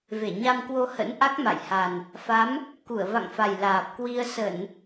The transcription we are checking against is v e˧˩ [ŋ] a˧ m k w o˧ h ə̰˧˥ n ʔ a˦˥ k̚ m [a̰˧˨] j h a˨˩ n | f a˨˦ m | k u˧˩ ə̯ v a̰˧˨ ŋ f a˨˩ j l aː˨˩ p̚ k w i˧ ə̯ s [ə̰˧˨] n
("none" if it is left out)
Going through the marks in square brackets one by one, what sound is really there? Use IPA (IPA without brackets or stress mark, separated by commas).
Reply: ɲ, a̰˧˨, ə˧˩˨